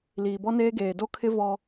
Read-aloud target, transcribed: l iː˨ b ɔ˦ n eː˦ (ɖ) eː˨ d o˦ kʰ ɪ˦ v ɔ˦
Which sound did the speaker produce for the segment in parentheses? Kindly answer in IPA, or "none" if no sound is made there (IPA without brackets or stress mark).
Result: ɡ